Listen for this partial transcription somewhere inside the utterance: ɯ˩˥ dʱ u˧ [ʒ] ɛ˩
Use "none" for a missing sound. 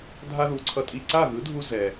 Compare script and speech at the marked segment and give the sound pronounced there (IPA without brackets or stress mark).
z